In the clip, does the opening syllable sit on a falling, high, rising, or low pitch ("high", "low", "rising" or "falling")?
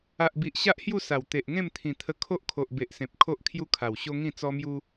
low